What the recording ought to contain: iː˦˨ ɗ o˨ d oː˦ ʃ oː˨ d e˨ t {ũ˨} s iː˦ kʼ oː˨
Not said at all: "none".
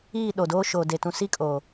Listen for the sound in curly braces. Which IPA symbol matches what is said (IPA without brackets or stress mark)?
ũ˨